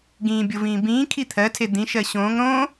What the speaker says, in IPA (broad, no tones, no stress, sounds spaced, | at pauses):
ɡ ĩː bʲ o v ĩː b ĩː kʰ i t̪ʰ ɜ tʰ e d̪ ĩ ʃ ɜ ɕ õː ŋ ɾ õ